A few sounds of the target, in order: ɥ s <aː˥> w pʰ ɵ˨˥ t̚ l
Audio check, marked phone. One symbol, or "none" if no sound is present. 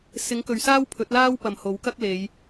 aː˥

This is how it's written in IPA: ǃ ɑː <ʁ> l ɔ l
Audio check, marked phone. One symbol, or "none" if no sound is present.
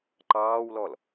w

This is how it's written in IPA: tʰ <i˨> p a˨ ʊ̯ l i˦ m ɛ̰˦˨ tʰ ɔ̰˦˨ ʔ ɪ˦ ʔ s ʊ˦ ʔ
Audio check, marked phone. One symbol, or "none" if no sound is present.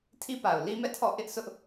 i˦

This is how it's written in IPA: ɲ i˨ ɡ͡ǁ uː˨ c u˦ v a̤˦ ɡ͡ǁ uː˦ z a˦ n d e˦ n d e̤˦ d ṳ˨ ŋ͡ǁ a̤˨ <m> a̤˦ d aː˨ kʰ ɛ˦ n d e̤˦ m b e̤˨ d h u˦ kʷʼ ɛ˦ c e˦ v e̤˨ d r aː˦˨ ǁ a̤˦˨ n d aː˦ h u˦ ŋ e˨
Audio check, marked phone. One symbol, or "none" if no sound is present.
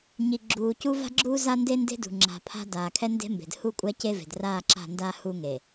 pʰ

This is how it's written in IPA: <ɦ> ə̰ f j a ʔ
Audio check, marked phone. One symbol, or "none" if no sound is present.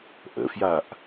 ʔ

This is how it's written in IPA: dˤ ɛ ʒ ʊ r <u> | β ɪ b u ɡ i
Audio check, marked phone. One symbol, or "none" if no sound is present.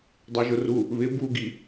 u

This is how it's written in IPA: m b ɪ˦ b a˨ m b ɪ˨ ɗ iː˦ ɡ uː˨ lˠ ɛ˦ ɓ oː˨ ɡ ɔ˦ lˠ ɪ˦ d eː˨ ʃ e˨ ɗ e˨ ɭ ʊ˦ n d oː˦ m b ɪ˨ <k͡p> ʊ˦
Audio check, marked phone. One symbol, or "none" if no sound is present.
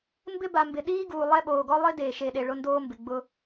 ɡ͡b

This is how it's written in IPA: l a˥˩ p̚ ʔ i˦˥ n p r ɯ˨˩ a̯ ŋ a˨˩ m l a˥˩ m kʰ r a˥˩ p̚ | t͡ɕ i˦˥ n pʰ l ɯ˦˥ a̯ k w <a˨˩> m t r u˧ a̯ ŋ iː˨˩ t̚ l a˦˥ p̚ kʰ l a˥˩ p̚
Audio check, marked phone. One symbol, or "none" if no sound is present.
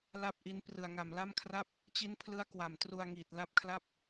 a˨˩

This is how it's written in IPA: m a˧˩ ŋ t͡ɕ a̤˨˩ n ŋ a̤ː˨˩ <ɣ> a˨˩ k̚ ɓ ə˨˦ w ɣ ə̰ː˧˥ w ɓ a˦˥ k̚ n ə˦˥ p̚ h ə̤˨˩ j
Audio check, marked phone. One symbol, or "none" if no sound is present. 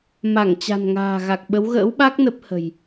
ɣ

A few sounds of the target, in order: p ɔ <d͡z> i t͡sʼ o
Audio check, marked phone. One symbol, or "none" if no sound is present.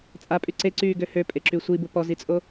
z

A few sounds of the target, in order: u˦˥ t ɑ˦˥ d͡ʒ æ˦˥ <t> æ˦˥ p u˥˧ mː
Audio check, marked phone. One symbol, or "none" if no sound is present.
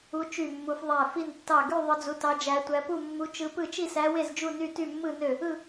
tʷ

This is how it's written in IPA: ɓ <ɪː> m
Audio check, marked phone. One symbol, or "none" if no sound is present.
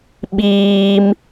iː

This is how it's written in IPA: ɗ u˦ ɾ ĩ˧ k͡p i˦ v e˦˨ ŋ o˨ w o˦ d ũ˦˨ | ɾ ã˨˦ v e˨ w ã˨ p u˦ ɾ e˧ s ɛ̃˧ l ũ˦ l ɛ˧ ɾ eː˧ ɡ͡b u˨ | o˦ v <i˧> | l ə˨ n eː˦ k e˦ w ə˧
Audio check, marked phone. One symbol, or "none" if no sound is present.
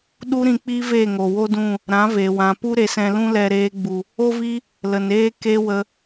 i˦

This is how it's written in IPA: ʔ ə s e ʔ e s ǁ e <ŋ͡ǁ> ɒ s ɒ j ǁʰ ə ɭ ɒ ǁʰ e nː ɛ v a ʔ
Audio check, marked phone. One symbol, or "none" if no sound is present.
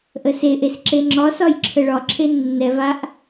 ŋ͡ǁ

